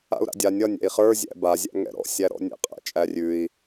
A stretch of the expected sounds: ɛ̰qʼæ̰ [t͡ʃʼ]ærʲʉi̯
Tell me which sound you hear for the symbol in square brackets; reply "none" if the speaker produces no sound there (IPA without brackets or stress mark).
t͡ʃʼ